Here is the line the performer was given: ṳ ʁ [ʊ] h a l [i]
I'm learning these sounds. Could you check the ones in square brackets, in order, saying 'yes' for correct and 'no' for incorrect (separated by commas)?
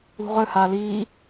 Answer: no, no